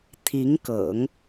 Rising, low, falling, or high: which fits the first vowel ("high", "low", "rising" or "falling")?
rising